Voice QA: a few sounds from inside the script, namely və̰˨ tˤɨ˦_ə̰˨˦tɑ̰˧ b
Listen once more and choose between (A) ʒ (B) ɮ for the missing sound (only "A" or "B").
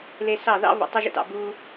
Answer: A